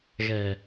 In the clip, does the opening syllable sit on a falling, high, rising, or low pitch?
low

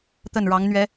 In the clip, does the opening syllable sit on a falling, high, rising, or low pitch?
falling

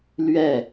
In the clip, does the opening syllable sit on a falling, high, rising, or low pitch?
falling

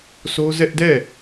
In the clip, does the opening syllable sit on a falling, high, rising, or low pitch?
high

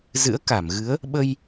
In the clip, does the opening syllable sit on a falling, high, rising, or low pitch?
rising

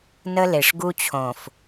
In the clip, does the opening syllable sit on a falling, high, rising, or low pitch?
high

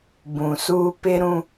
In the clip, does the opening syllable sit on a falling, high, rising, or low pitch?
low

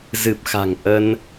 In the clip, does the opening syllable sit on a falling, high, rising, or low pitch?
low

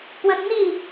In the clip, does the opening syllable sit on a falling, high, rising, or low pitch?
high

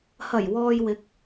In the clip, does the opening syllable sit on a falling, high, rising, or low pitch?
low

